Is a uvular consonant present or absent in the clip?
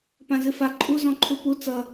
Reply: absent